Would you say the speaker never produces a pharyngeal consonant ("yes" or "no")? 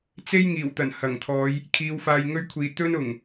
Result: yes